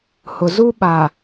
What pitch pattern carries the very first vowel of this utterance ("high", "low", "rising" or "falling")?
low